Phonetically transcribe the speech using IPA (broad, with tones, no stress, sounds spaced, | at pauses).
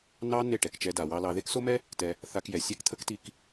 n ɑ˦ n e˦˨ ʈ ɛ˨ k t͡ʃ ɛ˧ d a˨ w ɑ˧ l ɑ˧ ð e˦ k s o˦ m ɛ˦ | t ɛ˧ | θ a˧ k j ɛ˨ sʲ e˦ k t̪ʰ ə˦ k t i˧ k